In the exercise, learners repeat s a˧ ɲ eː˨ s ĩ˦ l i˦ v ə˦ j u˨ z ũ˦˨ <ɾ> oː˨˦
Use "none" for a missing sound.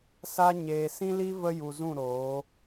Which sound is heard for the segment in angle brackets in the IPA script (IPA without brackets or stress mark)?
ɾ